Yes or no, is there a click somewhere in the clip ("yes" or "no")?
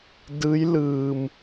no